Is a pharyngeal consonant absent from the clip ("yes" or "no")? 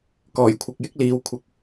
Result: yes